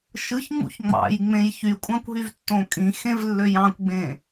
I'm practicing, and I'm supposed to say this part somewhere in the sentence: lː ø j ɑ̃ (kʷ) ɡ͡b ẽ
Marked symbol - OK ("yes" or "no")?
yes